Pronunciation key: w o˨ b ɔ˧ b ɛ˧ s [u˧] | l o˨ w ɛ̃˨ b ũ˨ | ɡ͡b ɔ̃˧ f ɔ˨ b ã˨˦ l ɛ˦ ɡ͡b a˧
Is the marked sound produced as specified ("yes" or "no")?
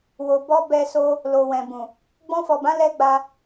no